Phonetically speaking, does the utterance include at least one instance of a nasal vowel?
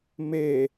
no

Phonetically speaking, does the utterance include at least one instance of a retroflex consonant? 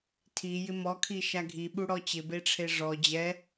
yes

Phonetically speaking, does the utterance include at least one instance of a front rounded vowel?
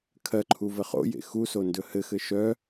yes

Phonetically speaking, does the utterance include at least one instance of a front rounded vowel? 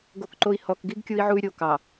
yes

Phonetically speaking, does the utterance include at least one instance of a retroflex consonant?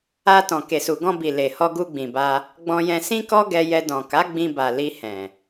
no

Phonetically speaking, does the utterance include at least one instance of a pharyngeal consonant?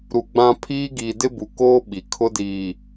no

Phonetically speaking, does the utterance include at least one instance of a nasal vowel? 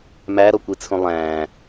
yes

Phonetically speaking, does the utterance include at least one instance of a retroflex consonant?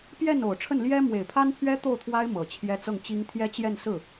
yes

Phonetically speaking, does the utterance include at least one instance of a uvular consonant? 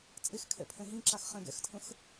yes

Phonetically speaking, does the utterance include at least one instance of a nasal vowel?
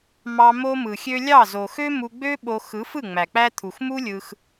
no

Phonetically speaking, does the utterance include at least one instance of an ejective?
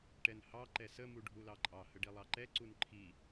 yes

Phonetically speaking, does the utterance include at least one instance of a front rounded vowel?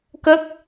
no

